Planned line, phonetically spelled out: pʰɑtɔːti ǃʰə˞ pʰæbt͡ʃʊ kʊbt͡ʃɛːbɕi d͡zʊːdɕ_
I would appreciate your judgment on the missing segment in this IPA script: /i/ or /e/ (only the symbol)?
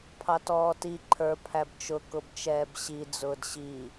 i